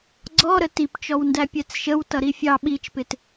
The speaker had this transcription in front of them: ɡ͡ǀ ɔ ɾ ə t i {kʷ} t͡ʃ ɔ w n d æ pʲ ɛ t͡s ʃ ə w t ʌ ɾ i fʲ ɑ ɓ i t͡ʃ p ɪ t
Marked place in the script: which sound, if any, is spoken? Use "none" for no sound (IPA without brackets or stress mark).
p